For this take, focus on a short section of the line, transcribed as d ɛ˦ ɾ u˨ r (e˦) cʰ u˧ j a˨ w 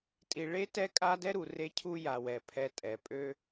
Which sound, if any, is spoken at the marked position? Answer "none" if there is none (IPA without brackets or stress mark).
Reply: e˧